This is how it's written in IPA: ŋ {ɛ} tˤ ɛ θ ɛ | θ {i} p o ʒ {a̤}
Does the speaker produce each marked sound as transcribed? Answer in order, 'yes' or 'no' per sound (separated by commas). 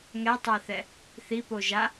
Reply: yes, yes, no